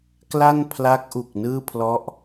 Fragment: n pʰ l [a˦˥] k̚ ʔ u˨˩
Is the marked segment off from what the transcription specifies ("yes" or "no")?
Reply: no